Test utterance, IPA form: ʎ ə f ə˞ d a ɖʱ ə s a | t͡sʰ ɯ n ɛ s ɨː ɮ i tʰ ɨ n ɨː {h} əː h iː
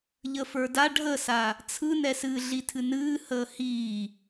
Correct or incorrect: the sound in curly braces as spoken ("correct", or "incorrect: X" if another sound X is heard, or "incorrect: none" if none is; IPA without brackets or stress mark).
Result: correct